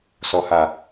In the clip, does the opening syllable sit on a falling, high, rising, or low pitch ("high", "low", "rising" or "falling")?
low